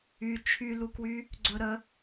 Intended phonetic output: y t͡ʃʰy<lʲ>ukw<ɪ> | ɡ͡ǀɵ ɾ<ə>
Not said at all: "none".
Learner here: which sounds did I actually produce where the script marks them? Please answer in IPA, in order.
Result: l, y, ə

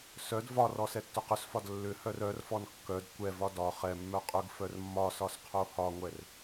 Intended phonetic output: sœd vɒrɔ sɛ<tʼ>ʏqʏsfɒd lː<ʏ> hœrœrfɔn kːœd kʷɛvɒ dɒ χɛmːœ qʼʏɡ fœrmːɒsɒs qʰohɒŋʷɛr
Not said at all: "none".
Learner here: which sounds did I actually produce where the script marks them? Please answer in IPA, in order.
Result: tː, ʏ

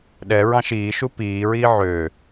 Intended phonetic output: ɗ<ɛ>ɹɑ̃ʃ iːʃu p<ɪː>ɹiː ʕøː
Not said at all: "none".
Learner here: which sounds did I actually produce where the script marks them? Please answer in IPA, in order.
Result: ɛ, iː

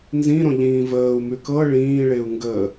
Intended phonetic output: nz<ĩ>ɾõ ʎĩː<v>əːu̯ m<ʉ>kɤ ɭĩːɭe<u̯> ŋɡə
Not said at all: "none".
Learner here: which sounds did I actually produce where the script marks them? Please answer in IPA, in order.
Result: ĩ, v, ʉ, u̯

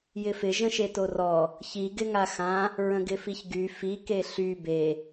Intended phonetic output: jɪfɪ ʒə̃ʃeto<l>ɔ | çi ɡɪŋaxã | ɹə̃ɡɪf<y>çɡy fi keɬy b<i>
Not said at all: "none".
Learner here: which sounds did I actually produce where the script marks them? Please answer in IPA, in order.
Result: r, i, e

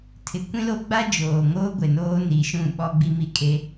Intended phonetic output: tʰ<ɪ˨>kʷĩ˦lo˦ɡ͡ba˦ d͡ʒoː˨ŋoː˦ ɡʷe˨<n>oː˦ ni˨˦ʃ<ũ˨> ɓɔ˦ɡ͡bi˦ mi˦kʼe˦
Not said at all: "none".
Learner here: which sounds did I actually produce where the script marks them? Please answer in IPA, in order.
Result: ɪ˨, n, ũ˦˨

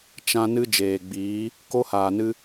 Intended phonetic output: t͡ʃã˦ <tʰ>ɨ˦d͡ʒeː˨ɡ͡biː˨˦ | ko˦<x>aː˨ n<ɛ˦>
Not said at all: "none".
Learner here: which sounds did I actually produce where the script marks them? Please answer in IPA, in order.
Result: n, h, ɨ˦

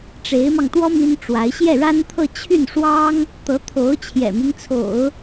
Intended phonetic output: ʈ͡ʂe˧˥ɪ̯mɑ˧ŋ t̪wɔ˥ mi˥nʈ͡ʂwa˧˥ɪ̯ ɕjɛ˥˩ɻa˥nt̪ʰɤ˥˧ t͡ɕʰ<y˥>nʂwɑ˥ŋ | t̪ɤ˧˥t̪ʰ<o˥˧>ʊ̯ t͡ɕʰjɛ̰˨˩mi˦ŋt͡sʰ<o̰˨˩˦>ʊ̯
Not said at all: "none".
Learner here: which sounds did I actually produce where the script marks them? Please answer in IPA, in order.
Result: y˥˩, o˧˥, o̰˨˩˦

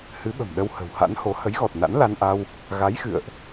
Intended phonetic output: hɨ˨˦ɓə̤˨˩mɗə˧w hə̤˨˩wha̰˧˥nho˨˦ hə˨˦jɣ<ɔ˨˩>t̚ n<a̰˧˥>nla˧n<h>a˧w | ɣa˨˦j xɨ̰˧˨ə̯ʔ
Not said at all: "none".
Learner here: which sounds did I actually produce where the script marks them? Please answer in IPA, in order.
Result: ɔ˨˩, a̰˧˥, ʔ

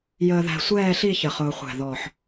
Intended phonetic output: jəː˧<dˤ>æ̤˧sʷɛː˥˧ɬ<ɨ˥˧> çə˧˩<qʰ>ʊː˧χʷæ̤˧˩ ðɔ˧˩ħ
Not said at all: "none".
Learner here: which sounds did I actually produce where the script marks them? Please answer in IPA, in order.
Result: ð, i˥˧, χ

